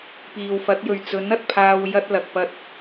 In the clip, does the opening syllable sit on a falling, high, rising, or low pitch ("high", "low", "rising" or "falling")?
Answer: low